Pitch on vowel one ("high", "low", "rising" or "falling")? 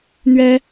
high